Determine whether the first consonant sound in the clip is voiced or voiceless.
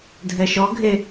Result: voiced